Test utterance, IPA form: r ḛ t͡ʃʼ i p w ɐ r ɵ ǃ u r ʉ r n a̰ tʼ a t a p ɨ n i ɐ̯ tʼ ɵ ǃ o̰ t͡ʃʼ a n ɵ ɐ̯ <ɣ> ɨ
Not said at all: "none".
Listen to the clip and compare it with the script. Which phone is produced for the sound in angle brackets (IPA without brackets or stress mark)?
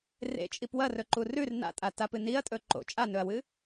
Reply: w